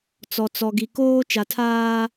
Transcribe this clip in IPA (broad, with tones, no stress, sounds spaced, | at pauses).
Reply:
t͡s ɔ˨ t͡s ɔ˨ ɡ i˨ k oː˦ t͡ʃ a˨ tʰ aː˦